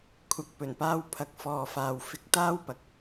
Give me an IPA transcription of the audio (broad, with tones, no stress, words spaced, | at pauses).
kʷʰɐ˨k̚pɵ˨˩npaː˧wpʰɐ˨˥k̚ fɔː˨faː˨w fɪ˨˥k̚ t̪aː˥wpɐ˨k̚